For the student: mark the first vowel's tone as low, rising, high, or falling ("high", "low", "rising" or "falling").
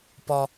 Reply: high